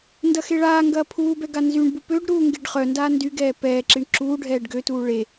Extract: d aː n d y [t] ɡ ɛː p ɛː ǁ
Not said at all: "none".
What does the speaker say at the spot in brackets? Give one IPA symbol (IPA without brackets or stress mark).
none